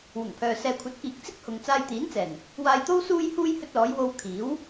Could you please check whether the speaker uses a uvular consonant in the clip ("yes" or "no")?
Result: no